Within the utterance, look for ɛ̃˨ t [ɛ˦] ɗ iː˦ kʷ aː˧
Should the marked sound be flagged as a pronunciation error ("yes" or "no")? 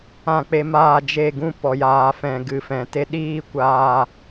yes